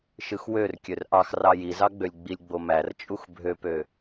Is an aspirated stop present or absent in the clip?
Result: absent